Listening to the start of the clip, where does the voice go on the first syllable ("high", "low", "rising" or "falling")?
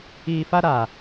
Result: low